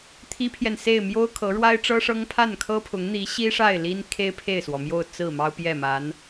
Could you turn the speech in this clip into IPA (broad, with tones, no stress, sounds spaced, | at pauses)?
t̪ʰ i˥ pʰ j ɛ˨ n s e˥˩ ɪ̯ m j o˥ ʊ̯ kʰ ɤ˧˥ ɻ w a˥ ɪ̯ ʈ͡ʂ ɤ˥ ʂ ɤ˥ ŋ pʰ a˥˩ n kʰ ɤ˥ pʰ ʊ˧˥ ŋ n̪ i˧˥ ɕ i˥ ʂ a˥˩ ɪ̯ l i˥ n kʰ e˥ ɪ̯ pʰ e˥˩ ɪ̯ s w ɔ˩ m j o˥˧ ʊ̯ t͡s ɹ̩˥˩ m ɑ˥ ʊ̯ p j ɛ˥˩ m a˧˥ n